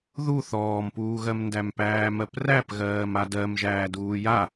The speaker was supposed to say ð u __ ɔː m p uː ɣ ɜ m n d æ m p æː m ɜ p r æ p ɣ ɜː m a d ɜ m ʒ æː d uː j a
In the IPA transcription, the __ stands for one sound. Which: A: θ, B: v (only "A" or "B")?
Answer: A